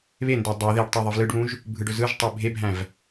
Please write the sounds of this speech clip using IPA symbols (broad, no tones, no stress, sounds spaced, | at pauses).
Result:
β e n d e dˤ i ð e ɖ tˤ i ðˤ ɯ v l ɯ ɖ β ũ ʒ | bʱ ɯ ɖ ɵ z ɯ ʒ tˤ e bʱ e bʱ æ̃ v